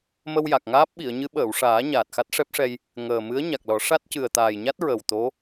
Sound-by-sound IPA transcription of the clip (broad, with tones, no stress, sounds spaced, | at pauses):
m ə˧ w j a˨˩ k̚ ŋ aː˦˥ p̚ ɓ i˨˩˨ ə̯ ɲ ɨ˧˥ ɓ əː˨˩˨ w ʂ aː˨˩˦ ɲ aː˨˩ t̚ x a˦˥ t̚ ʂ ɛ˦˥ p̚ ʂ ɛ˧ j | ŋ əː˨˩ m ɨ˧˥ ə̯ ɲ a˨˩ k̚ l ɔ˨˩˦ ʂ a˦˥ t̚ c ɨ˨˩ ə̯ t̪ aː˨˩ j ɲ a˦˥ t̚ ɹ ə˨˩ w t̪ o˧˥